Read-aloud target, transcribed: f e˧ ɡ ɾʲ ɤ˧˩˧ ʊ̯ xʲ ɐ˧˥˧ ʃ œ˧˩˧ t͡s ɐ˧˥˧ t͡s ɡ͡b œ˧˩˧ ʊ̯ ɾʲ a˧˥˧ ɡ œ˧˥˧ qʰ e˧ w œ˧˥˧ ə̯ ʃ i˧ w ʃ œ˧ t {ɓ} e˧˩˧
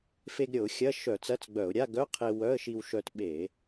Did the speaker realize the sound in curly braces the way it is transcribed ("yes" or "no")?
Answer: yes